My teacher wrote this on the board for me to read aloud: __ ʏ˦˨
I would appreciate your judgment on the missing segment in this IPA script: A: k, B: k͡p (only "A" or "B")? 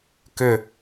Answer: A